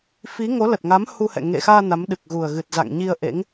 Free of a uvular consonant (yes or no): yes